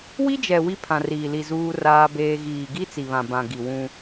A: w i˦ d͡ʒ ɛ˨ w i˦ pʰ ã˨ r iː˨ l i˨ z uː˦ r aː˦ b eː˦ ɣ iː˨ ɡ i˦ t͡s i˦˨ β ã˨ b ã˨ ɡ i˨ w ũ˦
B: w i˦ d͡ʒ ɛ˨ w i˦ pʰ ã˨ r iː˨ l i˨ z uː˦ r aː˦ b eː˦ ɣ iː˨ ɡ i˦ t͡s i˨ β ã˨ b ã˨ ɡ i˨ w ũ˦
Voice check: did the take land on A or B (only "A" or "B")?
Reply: B